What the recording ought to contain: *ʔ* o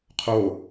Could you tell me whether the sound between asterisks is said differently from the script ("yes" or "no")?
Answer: yes